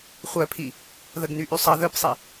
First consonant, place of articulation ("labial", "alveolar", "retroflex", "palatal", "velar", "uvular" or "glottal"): uvular